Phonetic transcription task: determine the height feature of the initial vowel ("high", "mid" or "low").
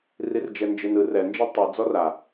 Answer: high